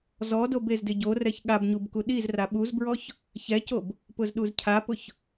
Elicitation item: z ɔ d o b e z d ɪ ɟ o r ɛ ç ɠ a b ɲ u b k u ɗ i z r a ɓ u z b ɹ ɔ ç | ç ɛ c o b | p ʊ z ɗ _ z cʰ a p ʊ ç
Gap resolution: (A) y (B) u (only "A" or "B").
B